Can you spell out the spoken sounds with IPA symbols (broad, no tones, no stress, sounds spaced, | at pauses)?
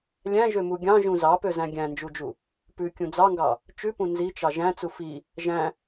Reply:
lʲ æ̃ ʒ ø m u ɡʲ ɑ̃ ʒ ũ z ɑ p ø z æ̃ ɡʲ æ̃ n d͡ʒ u d͡ʒ u | p ʉ kʲ ũ d͡z ɑ ŋ ɡ ɑ | t͡ʃ ʉ p ũ n z i t͡ʃ ɑ ʒ æ̃ t͡s u f i | ʒ æ̃